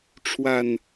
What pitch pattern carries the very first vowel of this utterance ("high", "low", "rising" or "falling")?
low